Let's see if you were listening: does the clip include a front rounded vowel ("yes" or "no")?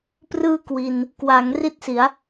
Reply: no